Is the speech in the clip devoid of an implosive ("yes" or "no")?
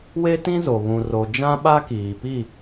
no